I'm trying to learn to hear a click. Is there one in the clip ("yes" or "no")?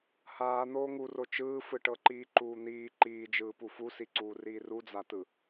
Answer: yes